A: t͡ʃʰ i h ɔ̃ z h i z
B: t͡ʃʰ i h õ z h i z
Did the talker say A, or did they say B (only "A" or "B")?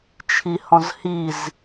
A